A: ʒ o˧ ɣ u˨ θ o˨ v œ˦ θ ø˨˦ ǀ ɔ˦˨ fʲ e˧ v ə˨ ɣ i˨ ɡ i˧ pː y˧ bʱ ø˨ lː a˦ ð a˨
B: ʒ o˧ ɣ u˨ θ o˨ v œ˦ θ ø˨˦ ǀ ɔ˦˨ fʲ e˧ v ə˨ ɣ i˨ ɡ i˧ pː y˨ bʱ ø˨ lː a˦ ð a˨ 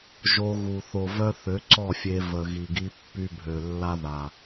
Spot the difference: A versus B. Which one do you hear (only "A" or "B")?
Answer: A